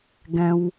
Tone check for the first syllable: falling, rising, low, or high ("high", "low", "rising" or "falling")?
high